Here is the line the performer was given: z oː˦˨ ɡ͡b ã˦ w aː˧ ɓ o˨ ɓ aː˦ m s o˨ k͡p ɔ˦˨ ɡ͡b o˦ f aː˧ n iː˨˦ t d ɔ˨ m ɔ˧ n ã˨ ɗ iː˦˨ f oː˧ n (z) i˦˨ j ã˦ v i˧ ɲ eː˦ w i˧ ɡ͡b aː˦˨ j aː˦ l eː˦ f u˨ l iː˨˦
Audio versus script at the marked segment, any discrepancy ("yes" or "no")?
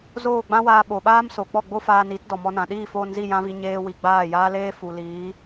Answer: no